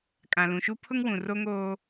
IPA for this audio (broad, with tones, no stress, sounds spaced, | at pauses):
kʼ ã˨ l ũ˨ ʃ u˦ pʰ ʊ˦ ŋ w ũ˨ r o˦ ŋ oː˦